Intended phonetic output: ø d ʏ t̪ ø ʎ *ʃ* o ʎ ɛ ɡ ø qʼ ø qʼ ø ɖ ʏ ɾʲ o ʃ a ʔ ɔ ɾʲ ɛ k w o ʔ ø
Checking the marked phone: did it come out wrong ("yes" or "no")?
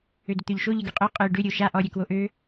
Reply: no